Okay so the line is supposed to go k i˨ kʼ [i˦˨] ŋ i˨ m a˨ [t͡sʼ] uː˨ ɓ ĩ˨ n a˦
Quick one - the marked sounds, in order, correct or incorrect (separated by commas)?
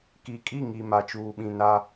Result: correct, incorrect